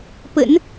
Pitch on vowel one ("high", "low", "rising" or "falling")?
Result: low